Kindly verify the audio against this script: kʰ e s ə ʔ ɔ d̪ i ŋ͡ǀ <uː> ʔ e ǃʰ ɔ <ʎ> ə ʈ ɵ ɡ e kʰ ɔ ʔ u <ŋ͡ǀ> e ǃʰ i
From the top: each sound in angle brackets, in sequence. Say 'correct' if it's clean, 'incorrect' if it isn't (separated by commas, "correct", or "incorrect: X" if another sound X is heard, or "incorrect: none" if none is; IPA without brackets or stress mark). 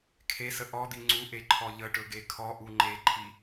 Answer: incorrect: u, correct, incorrect: ŋ͡ǃ